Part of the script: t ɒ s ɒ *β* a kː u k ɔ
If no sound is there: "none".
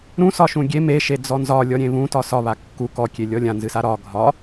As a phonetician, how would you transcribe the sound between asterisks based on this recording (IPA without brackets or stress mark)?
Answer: β